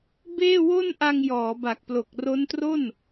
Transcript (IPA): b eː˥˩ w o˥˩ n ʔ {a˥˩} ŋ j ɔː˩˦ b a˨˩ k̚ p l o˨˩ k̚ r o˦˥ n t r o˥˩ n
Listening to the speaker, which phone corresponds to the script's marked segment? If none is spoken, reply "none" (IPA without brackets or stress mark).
a˧